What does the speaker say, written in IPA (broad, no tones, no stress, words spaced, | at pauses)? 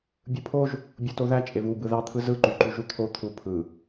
bʲɯpʰoʒ | bʲotoðæ t͡ʃʼevu bɯðɑ t̪ʰɯzɯ ǃyǃyʒut̪ʰo t̪ʰu pʰɯ